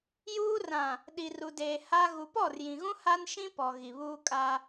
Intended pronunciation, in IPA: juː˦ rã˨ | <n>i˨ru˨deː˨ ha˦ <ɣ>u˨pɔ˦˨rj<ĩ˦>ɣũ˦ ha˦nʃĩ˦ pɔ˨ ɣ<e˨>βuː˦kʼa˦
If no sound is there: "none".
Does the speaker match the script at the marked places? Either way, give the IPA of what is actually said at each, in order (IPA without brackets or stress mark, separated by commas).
ɗ, ɣ, ĩ˨, i˨